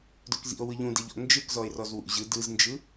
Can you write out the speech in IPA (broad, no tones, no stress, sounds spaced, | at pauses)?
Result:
d o k z ḭ o̯ w ɯ ʎ ũ d e ʎ ɔ̰ n d͡ʒ ɯ k z ɔ e̯ r ɔ z w ṵ ʑ ɯ d ɯ z n d͡ʒ ɯ